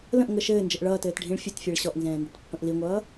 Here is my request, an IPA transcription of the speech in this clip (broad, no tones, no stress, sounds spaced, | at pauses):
l ə̃ ʔ ŋ ə ʃ ɘː n d͡ʒ ə ʔ ɭ ʌː t ɘː t ɖʱ ĩ ɭ fʲ ɘ t fʲ ɛ ɭ ɕ ɔ ʔ n z ɛ̃ː n d ə t pː ə̃ ʔ l i ŋʷ ʌː